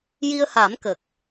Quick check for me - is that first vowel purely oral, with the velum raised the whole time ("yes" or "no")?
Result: yes